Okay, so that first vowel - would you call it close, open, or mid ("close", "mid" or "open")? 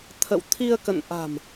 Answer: mid